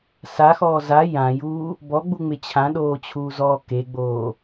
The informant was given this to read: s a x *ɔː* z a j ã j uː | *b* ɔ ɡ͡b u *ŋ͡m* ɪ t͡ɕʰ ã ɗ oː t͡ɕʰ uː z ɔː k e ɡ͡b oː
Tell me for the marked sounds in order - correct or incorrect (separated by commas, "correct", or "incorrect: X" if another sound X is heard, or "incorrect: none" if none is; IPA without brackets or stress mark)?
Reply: correct, correct, correct